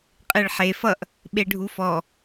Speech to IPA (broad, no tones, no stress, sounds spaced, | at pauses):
qʼ e ɭ ħ e f ʌ ʔ | ɓ e ɖʱ u f ɔ